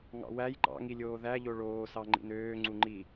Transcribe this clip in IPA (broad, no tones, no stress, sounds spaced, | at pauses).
ŋ ɑ̰ w æ j ǃ ɑ̰ ŋ i lʲ oː ð æ ʎ o ɭ oː s ɑ ŋ͡ǃ ḭ n øː ŋ͡ǀ u ŋ͡ǃ i